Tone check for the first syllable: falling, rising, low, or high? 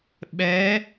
rising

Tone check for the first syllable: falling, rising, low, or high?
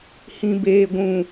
low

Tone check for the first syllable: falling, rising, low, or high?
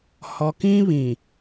low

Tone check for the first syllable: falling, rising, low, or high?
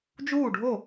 falling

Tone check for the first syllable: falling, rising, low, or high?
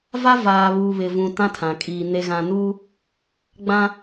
high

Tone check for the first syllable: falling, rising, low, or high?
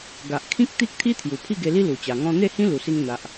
low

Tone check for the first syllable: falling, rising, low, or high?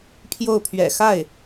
falling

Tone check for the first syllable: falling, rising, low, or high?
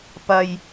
low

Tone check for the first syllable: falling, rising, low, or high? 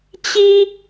high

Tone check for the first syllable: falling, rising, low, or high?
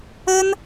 high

